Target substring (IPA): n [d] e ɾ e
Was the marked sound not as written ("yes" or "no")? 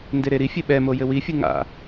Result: no